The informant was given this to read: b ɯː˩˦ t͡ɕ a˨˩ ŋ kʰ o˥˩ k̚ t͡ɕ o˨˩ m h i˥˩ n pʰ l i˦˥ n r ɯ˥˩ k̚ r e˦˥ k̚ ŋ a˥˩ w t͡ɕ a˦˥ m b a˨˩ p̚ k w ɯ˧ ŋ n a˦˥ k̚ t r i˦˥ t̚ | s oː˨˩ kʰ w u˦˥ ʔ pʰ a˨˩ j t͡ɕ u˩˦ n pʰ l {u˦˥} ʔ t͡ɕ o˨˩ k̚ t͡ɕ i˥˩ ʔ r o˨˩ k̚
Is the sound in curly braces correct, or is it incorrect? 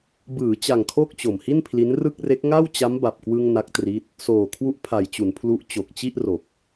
correct